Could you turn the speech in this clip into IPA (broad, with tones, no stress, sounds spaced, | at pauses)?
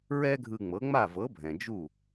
ɹ ɛ˥ ɡʱ ɯ˧ ŋ͡m ɤ˩˥ ŋ͡m a˥˩ v ɤ˩˥ bʱ ɛ̃˩ d͡ʒ u˥˩